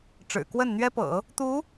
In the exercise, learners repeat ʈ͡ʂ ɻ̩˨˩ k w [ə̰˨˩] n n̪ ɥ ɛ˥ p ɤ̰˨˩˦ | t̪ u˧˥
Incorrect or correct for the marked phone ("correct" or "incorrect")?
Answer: incorrect